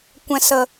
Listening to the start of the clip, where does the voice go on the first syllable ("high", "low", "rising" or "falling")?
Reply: low